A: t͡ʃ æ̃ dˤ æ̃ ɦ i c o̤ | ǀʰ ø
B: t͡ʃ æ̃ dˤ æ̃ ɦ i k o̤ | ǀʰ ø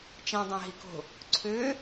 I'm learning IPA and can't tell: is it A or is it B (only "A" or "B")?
B